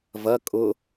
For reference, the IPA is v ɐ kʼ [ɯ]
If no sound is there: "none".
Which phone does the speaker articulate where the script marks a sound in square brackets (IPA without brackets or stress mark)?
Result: ʊ